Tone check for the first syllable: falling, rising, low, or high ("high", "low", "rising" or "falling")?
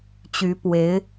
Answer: rising